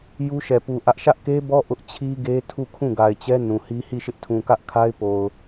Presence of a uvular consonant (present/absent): absent